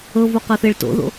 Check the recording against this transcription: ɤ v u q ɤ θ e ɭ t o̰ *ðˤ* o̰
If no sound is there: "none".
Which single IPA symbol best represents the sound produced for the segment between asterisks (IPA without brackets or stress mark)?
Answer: ð